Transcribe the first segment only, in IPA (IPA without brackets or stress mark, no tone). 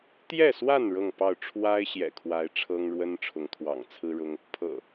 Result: t̪